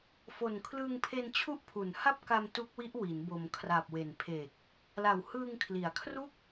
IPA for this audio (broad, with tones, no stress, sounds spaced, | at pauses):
f o˨˩ n kʰ l ɯː˧ ŋ pʰ e˧ n t͡ɕʰ u˦˥ ʔ pʰ u˨˩ n h a˥˩ p̚ k a˧ m t u˦˥ k̚ w i˦˥ ʔ w i˩˦ n b o˩˦ m kʰ r a˨˩ p̚ w e˨˩ n pʰ e˨˩ k̚ | l a˨˩ w h ɯː˧ ŋ kʰ l i˨˩ a̯ kʰ r u˥˩ k̚